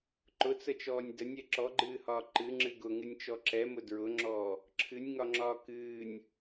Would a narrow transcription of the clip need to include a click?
yes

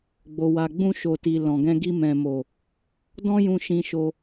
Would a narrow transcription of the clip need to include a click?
no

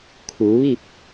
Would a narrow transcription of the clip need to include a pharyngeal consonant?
no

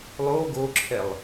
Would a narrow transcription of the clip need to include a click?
yes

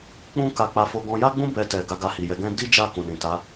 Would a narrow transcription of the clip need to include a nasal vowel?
yes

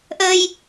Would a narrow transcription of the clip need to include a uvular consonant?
no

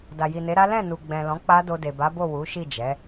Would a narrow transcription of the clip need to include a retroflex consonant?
no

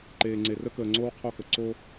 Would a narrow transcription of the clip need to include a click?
yes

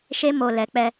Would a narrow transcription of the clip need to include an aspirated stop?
no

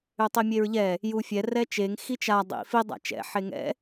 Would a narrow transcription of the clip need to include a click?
no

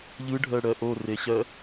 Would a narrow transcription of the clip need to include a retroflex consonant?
yes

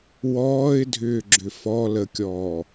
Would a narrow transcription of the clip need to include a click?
yes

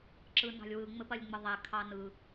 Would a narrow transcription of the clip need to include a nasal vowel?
no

